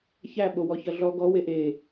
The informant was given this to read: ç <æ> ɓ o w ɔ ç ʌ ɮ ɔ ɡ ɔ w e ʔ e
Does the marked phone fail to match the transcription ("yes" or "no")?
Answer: no